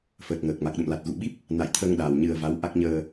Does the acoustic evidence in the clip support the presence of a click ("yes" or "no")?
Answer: no